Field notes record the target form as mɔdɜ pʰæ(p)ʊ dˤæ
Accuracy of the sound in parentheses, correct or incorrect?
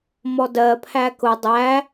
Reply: incorrect